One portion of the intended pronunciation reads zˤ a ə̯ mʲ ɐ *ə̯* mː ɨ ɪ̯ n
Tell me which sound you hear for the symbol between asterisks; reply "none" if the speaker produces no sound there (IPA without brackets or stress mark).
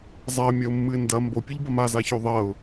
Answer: ʊ̯